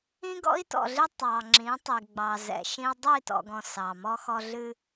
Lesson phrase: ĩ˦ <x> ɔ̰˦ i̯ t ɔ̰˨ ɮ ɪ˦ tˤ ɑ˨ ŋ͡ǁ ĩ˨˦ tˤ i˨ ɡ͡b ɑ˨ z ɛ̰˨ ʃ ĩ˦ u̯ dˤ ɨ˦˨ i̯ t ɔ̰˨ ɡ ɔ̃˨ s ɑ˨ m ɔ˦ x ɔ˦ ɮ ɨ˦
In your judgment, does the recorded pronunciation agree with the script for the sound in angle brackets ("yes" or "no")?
no